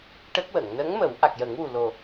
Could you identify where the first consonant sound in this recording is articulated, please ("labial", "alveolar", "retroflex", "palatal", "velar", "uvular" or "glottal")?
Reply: retroflex